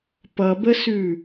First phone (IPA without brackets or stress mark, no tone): p